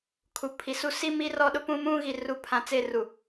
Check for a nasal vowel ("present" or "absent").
present